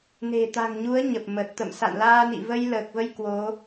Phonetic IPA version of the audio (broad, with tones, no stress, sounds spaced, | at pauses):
n e̤˨˩ t̪ a̤˨˩ ŋ ɲ u˨˦ ə̯ ɲ ə˨˩ p̚ m ə˨˩ t̚ t̪ ə̰˧˨ m s a̰˧˨ n l aː˧ n ḭ˧˨ v ə˧ j l əː˨˩ k̚ v ə˧ j k w o˨˦